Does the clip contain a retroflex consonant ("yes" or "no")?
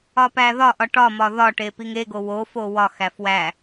yes